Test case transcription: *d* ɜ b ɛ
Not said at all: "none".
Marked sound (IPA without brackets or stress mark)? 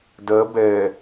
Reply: d